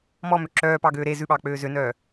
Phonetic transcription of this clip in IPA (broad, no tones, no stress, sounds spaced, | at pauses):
m ɔ m ø ǁ œː p ɑ ɡ øː ɾ e z ʉ ɓ ɑː k͡p øː z ø n œː